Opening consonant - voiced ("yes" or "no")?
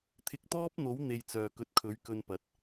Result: no